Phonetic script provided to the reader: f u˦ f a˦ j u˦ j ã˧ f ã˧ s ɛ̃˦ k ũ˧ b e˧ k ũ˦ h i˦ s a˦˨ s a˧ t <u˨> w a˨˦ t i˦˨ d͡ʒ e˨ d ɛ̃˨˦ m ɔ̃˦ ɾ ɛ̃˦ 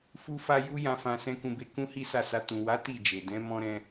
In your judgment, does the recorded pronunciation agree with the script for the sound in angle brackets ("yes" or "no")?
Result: no